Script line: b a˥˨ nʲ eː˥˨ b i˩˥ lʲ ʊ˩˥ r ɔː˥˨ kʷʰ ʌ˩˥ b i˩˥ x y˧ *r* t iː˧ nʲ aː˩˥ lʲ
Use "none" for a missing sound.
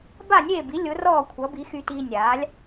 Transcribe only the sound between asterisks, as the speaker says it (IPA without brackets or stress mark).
none